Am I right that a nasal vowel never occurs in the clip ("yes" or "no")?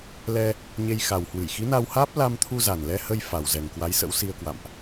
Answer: yes